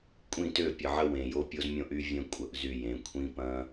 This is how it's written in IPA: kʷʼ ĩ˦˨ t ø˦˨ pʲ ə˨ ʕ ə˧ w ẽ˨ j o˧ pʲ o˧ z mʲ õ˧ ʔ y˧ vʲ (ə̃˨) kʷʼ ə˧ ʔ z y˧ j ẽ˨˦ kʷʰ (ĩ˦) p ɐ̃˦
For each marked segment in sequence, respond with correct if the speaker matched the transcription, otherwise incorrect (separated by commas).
incorrect, correct